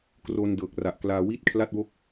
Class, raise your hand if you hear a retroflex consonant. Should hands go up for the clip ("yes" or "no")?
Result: no